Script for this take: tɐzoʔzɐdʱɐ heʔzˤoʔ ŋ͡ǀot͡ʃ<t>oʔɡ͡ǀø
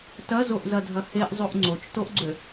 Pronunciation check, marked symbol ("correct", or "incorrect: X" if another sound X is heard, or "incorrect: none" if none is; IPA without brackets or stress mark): correct